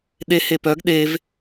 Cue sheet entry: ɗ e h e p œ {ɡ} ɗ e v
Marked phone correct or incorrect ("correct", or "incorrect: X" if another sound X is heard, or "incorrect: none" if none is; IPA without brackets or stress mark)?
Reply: correct